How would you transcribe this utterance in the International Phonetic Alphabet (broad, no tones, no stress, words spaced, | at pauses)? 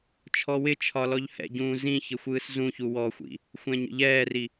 t͡ʃʰɔwɪt͡ʃʰɒ lɔʎhɛ̰ɟũː zĩçɪ xʷɯːszũçu wɔxʷḭ | xʷɛ̃ɲə̰ʎɛːri